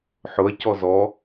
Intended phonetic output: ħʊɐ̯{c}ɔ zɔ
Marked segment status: correct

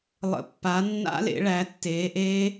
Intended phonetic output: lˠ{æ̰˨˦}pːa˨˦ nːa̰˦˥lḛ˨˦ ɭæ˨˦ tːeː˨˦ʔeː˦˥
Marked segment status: incorrect: ə̰˨˦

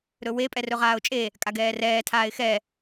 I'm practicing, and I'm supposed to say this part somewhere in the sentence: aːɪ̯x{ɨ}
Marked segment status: incorrect: ɛ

